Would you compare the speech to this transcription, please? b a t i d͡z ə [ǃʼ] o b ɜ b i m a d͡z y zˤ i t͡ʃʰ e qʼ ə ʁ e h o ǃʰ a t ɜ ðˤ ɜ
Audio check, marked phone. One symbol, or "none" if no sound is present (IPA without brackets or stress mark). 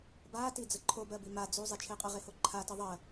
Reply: ǃʰ